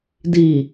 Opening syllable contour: low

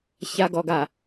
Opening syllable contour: low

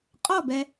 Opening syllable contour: falling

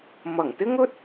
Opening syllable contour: low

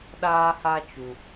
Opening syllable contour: high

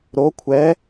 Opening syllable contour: rising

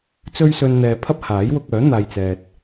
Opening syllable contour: high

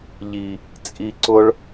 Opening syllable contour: low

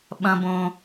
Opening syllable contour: low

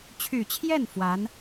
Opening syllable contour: low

